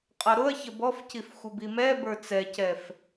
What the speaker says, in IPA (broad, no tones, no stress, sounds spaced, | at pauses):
qʼ ʌ ɾ ʊ ɐ̯ ç ə b ɔ f c i f xʷ ə b i m ɛ b ə˞ t͡s ɛ c ɛ f